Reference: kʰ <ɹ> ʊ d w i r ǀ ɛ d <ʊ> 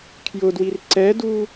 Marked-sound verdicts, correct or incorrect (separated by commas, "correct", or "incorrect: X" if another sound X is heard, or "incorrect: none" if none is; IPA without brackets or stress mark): incorrect: j, incorrect: u